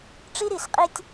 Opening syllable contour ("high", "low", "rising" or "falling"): high